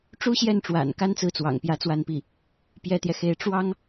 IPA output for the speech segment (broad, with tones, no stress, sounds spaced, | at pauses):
ʈ͡ʂ u˥ ɕ j ɛ˥˩ n ʈ͡ʂ w a̰˨˩ n k a˥ n t͡s ɹ̩˥˩ t͡s w ɑ̰˨˩ ŋ p j ä˧˥ t͡s w a˥˧ n p i˥˩ | p j ɛ˥ t̪ j ɛ˨ x e˧˥ ɪ̯ ʈ͡ʂ w ɑ˥ ŋ